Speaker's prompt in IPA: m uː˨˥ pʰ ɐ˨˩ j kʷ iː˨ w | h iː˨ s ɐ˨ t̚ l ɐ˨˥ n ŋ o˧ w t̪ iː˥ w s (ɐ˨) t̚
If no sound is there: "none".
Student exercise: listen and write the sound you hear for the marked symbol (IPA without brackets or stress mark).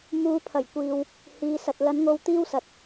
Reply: ɐ˨